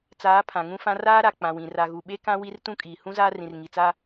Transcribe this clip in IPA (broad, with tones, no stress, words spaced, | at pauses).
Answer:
t͡saː˨˦ pʰã˨ŋũ˦fã˦ raː˦ɾa˨ k͡pã˨wĩ˨ ra˨ɣu˨ ɓe˦kã˦wi˦r tũ˦kʼiː˨ hũ˦ zaː˦rĩ˨r ŋi˨t͡sa˦